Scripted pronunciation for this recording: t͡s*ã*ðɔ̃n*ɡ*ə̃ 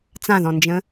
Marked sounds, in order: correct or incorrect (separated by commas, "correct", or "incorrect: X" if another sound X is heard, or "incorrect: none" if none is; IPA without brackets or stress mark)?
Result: correct, incorrect: d͡ʒ